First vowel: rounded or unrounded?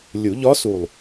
rounded